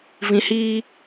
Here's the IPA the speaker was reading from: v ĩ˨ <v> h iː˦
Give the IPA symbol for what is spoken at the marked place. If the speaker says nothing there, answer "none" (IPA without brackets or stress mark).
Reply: none